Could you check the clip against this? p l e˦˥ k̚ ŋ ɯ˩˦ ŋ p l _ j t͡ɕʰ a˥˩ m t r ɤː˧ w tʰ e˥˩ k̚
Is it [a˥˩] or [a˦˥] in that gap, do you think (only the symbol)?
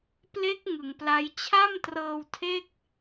a˦˥